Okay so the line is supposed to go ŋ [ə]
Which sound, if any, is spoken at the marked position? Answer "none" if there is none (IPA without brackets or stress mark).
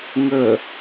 ə